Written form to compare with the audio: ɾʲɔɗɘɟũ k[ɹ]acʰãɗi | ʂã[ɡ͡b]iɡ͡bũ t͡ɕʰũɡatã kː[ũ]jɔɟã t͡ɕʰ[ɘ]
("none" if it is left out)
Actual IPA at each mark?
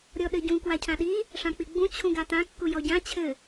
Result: w, k͡p, u, ɘ

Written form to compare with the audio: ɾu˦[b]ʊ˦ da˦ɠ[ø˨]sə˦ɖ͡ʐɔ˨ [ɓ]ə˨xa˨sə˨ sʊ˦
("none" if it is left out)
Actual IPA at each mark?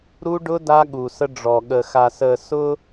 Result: ɖ, u˨, ɠ

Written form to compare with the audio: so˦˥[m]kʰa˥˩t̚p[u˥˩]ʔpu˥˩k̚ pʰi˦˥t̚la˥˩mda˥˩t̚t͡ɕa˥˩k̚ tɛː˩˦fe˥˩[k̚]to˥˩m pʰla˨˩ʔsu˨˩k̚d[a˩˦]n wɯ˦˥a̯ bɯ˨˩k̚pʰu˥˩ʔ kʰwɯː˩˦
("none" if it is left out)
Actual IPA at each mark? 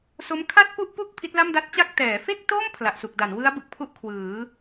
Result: m, u˥˩, k̚, a˩˦

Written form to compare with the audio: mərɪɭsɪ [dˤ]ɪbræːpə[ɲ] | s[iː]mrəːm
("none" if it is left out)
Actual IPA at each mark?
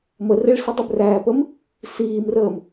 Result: dˤ, m, iː

